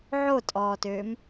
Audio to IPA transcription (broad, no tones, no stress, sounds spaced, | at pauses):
ʕ o tʼ ɔː t øː m